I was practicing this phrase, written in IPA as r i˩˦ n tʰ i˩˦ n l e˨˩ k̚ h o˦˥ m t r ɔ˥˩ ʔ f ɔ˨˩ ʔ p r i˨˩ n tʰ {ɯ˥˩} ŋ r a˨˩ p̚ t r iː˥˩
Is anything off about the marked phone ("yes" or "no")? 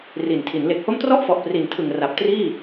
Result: yes